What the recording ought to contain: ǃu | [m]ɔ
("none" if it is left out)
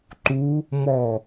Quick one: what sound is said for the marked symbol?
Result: m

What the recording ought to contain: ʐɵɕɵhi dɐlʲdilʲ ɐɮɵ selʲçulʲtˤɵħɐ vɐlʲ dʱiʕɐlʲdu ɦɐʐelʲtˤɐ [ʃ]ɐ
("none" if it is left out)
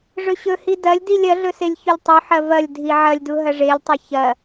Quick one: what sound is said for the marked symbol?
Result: ç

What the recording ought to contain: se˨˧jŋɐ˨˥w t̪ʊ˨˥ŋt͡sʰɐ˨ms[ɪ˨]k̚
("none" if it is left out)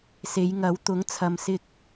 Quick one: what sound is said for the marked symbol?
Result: ɪ˧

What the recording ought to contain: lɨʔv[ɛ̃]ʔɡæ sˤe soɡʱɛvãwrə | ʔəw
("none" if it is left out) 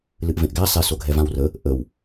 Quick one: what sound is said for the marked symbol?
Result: ẽ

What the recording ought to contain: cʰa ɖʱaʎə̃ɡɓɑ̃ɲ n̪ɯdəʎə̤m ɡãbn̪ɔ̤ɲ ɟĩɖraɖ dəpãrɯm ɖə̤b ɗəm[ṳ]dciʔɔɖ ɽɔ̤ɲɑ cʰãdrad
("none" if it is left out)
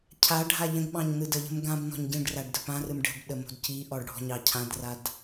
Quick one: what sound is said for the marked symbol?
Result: o̤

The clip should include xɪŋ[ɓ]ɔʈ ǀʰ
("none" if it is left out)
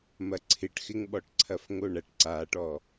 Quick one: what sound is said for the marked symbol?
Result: ɓ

